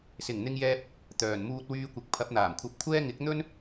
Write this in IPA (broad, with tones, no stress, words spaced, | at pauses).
sɪ˨˩ŋn̪ɪ˧ŋjɛː˧p̚ | t̪œː˨˩nmuː˧t̚wyː˧kʷɪ˨k̚ pʰɐ˨˥p̚n̪aː˨˩mkʷʰɐ˧p̚kʷʰɛː˥ ŋɪ˨˥k̚n̪ɵ˥n